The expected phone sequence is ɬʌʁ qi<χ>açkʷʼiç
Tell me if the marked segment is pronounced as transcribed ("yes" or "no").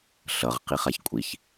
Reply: yes